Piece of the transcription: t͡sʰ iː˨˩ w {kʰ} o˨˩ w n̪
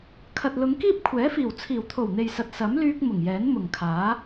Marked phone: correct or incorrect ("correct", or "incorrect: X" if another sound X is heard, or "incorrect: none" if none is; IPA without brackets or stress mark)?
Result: incorrect: t̪ʰ